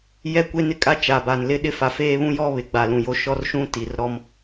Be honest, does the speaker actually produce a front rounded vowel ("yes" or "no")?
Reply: no